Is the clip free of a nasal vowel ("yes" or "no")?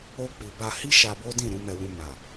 no